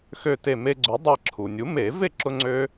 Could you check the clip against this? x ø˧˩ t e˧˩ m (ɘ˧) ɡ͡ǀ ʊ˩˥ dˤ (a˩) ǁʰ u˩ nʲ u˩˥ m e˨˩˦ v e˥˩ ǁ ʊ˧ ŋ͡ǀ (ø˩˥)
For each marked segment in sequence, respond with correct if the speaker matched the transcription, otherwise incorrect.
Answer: incorrect, incorrect, incorrect

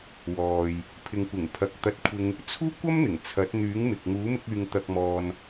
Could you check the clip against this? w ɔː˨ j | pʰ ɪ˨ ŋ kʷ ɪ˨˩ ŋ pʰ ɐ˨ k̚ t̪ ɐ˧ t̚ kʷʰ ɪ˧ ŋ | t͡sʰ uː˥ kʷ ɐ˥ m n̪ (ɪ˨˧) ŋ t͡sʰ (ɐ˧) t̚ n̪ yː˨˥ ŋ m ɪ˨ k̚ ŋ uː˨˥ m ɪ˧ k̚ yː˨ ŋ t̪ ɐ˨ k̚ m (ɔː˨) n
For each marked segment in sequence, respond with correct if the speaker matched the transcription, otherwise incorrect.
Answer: incorrect, incorrect, correct

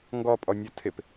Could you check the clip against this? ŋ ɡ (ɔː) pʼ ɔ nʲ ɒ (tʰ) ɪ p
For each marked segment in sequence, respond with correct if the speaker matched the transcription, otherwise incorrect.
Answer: incorrect, correct

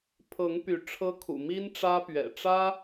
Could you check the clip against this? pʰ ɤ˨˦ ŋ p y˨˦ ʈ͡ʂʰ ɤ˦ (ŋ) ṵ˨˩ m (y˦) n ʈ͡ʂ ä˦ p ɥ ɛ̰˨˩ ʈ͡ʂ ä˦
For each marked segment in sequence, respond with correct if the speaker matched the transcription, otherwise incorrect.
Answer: incorrect, incorrect

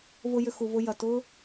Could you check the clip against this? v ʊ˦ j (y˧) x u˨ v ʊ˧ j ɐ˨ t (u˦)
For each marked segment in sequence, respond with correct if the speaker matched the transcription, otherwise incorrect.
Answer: incorrect, incorrect

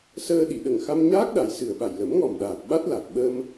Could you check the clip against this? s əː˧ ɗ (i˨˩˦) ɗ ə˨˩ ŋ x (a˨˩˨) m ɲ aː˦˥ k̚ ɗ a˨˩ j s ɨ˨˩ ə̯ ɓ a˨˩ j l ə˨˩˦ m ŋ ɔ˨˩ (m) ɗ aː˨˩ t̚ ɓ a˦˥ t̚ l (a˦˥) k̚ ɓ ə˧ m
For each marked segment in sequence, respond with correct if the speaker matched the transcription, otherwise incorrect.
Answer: incorrect, incorrect, correct, incorrect

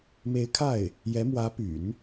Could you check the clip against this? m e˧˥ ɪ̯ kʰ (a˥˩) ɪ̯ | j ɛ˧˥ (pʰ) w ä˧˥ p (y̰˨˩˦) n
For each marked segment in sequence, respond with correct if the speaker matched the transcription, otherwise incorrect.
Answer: correct, incorrect, correct

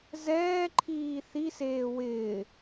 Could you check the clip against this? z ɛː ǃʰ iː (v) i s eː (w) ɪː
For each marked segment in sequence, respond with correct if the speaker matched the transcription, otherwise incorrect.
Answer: incorrect, correct

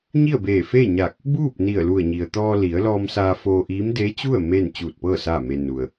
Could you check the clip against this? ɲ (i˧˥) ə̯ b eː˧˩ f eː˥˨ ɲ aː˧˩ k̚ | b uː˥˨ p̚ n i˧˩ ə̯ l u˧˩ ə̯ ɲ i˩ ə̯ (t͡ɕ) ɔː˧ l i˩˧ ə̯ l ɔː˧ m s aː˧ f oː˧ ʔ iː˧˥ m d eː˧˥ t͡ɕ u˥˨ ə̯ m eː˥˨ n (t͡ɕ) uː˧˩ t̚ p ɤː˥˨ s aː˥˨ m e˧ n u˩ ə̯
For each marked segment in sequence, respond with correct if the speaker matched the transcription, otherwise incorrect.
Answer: incorrect, incorrect, correct

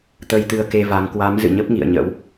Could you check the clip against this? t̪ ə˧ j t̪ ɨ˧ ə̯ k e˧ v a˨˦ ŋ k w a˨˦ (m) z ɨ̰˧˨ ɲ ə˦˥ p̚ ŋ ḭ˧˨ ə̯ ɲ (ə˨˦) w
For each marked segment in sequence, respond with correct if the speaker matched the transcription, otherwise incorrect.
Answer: correct, incorrect

